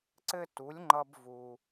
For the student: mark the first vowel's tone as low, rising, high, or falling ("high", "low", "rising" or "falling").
high